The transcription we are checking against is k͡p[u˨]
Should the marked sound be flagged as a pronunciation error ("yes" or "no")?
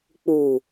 no